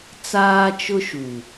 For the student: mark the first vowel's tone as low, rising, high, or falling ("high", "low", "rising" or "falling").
high